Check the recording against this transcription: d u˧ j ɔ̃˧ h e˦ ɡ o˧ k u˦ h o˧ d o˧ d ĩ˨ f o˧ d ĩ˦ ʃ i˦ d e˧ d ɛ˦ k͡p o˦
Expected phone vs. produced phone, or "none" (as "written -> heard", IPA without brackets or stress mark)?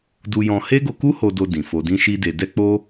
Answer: none